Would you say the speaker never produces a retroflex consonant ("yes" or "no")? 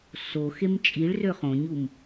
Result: no